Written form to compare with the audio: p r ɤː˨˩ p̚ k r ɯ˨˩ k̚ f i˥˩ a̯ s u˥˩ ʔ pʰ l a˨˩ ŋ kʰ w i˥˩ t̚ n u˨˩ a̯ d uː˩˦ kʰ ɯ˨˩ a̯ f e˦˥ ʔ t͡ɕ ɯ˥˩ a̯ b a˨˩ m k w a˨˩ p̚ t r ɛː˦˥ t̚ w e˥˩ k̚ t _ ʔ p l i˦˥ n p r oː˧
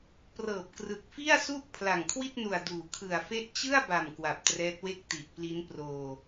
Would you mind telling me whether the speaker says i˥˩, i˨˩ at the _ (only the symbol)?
i˨˩